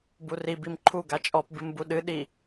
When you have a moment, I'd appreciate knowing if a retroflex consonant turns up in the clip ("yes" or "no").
no